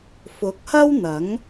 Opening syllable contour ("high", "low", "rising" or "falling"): rising